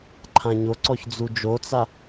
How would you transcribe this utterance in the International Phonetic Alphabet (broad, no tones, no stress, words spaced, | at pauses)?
ǃʰãɲoǀɔç d͡zud͡ʒot͡sa